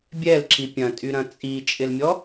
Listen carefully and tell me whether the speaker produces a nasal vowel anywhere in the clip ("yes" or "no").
yes